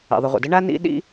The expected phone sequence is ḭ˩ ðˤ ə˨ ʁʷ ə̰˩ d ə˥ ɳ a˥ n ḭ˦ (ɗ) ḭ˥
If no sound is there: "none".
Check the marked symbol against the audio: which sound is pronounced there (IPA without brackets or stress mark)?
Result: ɗ